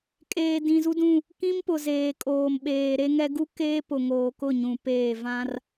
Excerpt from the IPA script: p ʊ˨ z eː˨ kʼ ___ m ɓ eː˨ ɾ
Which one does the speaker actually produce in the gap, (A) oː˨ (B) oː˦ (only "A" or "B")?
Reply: A